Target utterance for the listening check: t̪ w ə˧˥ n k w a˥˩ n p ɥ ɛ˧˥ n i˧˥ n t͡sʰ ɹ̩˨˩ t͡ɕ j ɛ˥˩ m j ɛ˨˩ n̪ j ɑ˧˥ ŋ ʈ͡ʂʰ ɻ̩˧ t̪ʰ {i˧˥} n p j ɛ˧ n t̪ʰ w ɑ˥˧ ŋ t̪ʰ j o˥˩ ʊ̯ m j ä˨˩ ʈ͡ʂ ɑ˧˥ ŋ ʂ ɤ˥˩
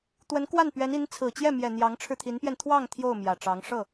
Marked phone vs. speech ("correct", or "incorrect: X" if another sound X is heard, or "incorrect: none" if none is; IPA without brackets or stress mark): correct